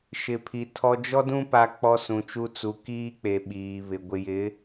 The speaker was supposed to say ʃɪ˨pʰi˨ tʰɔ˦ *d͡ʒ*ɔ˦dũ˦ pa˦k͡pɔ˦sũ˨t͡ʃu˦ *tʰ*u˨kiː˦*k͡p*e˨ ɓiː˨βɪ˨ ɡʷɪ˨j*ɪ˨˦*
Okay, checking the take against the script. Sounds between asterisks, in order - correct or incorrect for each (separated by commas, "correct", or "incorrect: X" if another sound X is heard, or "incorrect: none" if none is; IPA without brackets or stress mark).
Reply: correct, incorrect: t͡s, correct, correct